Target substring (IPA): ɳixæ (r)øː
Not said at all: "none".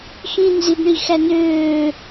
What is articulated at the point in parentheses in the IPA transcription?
n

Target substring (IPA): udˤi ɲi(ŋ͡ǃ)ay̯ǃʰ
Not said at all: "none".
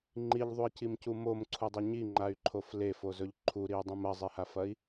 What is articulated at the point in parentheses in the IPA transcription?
ŋ͡ǃ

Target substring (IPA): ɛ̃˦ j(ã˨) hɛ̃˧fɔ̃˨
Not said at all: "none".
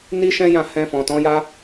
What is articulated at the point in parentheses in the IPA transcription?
ã˦˨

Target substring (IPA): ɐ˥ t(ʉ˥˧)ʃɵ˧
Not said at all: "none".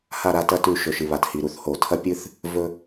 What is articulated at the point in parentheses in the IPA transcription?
ʉ˥˧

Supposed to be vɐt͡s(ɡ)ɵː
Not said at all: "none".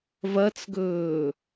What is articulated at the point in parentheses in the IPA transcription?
ɡ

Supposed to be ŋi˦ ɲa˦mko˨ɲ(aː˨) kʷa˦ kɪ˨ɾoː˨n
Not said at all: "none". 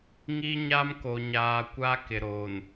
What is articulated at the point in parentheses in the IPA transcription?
aː˨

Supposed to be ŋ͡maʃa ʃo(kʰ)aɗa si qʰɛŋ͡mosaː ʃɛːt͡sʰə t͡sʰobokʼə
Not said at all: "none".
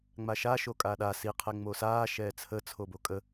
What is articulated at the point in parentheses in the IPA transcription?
kʼ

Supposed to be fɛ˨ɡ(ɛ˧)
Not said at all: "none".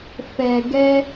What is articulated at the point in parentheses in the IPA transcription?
ɛ˧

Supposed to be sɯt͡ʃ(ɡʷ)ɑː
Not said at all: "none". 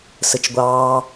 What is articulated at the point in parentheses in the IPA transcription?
ɡʷ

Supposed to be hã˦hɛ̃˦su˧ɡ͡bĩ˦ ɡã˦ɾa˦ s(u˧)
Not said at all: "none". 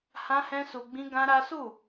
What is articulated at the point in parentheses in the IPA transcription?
u˦˨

